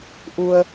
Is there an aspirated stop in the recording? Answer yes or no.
no